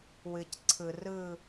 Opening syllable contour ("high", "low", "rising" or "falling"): low